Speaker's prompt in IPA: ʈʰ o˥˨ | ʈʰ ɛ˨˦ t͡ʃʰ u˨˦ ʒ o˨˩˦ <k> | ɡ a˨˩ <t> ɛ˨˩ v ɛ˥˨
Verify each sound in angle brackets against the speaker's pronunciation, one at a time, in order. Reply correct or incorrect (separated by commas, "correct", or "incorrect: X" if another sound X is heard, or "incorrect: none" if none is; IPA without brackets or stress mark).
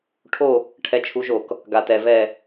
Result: correct, correct